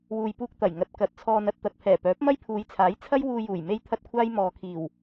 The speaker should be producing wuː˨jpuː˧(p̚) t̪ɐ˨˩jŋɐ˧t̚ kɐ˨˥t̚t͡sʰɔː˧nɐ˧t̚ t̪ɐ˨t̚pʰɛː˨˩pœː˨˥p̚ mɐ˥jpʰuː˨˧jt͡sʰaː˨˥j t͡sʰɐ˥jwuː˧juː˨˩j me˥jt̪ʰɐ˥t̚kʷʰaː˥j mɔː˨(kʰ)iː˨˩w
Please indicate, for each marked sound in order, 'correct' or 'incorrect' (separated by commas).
incorrect, correct